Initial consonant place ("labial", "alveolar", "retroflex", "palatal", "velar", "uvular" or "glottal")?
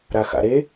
alveolar